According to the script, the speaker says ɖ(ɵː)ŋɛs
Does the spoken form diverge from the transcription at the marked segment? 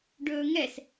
no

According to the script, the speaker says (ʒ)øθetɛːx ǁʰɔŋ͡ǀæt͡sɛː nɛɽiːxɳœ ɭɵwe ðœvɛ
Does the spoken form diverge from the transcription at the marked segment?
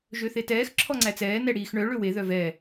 no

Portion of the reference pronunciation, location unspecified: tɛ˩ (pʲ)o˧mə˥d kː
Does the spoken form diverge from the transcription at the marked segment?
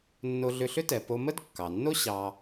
yes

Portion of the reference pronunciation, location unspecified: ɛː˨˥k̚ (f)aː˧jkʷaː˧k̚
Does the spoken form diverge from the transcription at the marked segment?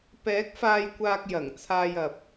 no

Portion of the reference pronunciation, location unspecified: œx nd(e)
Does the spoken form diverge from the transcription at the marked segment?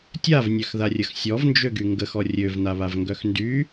yes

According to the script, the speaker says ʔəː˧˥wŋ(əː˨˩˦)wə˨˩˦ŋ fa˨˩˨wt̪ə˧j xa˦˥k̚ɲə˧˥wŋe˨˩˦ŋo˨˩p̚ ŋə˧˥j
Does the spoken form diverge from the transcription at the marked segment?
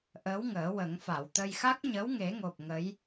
no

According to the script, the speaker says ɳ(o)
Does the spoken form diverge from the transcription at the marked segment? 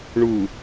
yes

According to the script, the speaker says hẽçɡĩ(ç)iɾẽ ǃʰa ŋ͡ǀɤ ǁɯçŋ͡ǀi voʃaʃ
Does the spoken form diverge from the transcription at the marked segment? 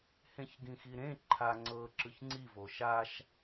yes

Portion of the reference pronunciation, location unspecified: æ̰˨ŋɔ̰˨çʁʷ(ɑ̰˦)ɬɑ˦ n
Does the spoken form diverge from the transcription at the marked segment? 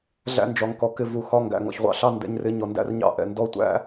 yes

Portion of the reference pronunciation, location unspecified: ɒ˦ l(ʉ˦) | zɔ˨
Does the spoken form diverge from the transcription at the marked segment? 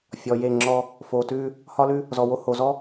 no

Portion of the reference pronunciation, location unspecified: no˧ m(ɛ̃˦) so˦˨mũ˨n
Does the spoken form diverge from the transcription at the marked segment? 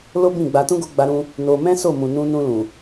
no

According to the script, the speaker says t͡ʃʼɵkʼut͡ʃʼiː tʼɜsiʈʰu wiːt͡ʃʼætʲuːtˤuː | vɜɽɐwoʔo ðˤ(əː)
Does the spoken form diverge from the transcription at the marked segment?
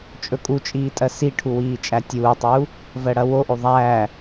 yes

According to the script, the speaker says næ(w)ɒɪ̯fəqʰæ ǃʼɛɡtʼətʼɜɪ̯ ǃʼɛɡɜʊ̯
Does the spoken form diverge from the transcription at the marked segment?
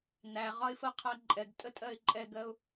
yes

